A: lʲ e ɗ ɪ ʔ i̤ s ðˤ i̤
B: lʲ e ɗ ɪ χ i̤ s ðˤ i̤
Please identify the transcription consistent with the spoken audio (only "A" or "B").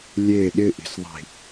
A